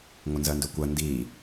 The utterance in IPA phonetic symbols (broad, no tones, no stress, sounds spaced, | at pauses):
ŋʷ ɘ n z ɜ n d ɵ kʷ ɜ n d i